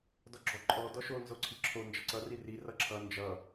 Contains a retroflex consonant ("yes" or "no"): no